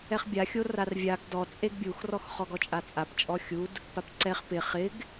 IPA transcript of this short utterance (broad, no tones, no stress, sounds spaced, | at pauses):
ɛ χ bʲ a xʲ o r a r vʲ a ɡ d ɔ t͡sʼ e ɡ bʲ u x r ɔ x χ ɔ ɡ ɔ t͡ʃʼ a t͡sʼ a p t͡ʃʼ ɔ xʲ u d | p a p ǀ ɛ χ p ɪ χ ɪ ɡ